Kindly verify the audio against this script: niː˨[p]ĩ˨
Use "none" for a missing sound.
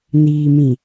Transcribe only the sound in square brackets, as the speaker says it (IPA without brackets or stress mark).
m